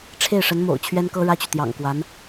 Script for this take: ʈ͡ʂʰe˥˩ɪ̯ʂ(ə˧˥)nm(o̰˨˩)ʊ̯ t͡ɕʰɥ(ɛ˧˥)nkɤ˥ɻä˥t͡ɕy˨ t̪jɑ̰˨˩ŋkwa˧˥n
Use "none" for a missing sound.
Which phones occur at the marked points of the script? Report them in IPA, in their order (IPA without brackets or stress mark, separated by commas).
ə˧˥, o̰˨˩, ɛ˥